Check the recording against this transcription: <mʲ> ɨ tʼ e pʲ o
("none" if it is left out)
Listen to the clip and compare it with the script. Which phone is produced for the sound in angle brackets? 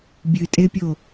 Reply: bʲ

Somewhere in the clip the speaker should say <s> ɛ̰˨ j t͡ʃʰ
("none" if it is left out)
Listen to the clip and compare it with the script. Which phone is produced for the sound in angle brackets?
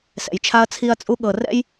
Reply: s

